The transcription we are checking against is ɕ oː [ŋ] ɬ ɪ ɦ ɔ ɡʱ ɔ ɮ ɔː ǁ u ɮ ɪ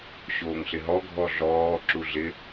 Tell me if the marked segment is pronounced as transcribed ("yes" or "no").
yes